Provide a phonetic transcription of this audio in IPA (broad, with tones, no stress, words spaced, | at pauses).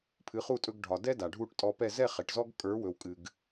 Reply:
pʰɨ˩˥χu˥˩tʼɵ˧ɡ ɖʱɒ˩dɛ˥ da˩ɖʱu˥˩ʈtʼɔ˧pɛ˥˩ zɛ˥˩ χɛ˩ʈzɔ˥ɡ kʼə˞˩˥ wɵ˩wkʼɨ˩ɡ